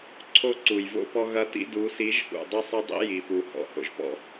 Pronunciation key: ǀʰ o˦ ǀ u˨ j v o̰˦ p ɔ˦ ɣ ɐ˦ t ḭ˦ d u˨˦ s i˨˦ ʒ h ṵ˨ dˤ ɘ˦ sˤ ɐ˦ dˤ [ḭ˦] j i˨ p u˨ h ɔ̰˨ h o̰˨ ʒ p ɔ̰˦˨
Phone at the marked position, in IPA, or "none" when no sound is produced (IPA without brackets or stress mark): ḭ˦